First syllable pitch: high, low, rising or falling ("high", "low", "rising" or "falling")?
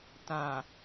low